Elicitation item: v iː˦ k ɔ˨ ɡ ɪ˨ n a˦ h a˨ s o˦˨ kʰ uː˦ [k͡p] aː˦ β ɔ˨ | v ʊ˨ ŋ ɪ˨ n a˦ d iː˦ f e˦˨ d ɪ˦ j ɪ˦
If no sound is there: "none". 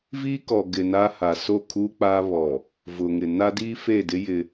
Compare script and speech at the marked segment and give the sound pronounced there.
k͡p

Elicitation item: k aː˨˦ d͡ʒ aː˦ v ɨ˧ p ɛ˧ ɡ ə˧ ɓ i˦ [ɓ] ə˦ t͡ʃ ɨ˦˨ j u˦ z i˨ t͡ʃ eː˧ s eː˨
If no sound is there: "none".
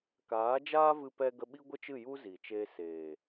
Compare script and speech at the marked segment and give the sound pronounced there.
ɡʷ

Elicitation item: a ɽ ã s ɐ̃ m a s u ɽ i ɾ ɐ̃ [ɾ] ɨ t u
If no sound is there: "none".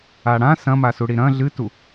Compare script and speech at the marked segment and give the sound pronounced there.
ɮ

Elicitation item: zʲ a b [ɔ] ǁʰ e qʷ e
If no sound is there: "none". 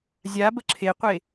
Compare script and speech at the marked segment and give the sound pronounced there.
ə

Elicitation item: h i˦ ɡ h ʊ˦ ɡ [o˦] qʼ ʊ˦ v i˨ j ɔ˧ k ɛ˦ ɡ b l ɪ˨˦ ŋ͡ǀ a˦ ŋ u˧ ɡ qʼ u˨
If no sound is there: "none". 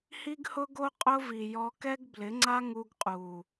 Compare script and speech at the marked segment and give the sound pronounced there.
o˦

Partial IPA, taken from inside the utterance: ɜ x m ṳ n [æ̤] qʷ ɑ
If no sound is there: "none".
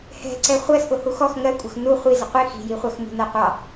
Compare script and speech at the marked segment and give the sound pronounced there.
æ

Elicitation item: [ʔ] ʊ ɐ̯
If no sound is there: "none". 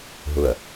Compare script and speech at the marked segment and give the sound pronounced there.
ɦ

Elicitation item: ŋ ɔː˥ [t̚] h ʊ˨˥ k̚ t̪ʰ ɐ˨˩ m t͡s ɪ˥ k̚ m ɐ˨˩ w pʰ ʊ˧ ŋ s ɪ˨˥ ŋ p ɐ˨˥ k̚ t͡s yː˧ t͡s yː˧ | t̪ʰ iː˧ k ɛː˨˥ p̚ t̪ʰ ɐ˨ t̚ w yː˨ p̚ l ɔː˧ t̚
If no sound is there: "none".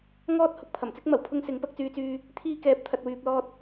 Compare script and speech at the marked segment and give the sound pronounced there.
t̚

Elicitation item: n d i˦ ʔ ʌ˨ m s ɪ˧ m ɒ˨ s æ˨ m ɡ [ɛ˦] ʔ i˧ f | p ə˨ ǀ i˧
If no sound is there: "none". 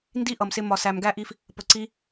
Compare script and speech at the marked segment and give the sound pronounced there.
æ˦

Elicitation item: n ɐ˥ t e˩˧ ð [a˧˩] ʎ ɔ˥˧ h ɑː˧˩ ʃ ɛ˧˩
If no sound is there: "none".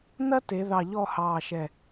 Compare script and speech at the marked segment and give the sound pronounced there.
ɑ˧˩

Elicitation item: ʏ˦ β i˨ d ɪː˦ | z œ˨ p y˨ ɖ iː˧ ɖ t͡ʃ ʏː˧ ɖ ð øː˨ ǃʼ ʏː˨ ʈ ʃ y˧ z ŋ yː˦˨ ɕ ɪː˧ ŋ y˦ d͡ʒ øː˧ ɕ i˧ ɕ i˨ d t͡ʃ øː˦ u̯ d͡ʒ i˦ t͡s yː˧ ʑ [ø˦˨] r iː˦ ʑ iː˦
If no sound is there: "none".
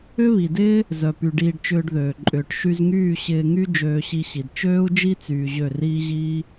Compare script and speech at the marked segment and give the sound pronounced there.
ø˦˨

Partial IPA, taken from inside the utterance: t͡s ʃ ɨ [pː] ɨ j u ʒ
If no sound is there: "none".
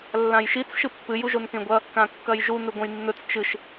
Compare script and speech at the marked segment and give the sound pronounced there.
pː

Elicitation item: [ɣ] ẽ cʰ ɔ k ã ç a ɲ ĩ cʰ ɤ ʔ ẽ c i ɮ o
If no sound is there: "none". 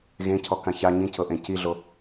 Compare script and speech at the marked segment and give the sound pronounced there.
ɣ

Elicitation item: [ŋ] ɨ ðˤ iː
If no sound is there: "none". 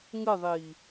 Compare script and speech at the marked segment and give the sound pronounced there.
ŋ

